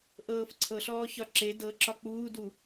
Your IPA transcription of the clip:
ʔɤːfǀʰɤɬɔː çɒǁe dɤǁɒ k͡puːdu

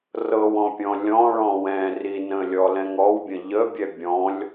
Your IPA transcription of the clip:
rɤwɔ̃pʲɔ̃ lʲɔ̃ɭɔ̃ wɛ̃ ri nə̃lʲɔlɛ̃ŋ ɔwbʲə̃ ʎəbʲɛ bʲɔ̃lʲ

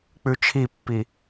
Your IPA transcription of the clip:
k͡pʉt͡ʃʰipːi

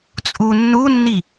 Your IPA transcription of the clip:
t͡sʼunːunːi

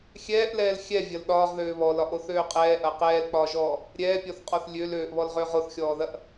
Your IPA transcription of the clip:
xʲɛːʔlɛːl xʲɛvʲɐl ɗɒːʁðøː βɔlɒʔoθøː qʼɛːʔɐ qɛːlk͡pɒːʒɔː | ɾʲɛːpʲɔθqʼɔθ lʲøl øːʔβɔlʁøːʁ oθxʲɔːðɐʔ

